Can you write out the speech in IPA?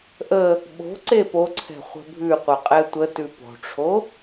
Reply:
ʔ ə | ɓ o̤ ǀ e p o ǀʰ ɛ̤ χʷ ə̤ bʱ ʉ qʷ œ qʼ ɛ tʷ ə t ʉ p o̤ ʈ͡ʂʰ o

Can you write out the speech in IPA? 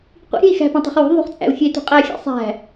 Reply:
qʷ ḭ ɾʲ e̤ i̯ x æ̤ p õ tˤ e̤ χ w ṳ ðˤ ṳ χ t͡sʼ æ̰ u̯ xʲ e t ṳ qʼ æ xʲ æ̰ sˤ æ̤

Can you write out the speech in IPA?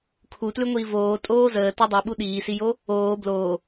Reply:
kʰ u t l ʉ ŋʷ iː v oː tʼ oː z əː t o dˤ ʉ ɓ u ɗ iː s i j o | oː b l oː

